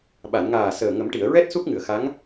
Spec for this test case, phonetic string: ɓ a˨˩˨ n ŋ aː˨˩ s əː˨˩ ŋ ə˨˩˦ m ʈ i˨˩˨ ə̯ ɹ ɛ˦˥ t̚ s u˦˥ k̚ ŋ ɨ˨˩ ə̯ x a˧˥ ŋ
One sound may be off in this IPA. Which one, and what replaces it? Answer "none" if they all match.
none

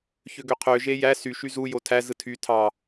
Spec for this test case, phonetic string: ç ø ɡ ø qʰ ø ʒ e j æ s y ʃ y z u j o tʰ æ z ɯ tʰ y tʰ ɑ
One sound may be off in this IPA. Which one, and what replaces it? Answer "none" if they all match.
none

